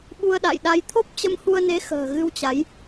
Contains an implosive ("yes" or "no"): yes